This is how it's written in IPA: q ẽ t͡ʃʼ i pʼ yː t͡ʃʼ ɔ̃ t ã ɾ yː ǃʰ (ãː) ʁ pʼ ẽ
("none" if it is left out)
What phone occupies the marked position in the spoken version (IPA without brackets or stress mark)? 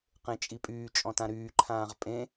ãː